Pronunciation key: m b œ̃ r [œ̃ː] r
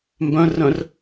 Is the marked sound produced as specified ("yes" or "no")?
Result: no